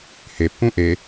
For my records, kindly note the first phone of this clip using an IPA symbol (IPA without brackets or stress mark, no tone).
h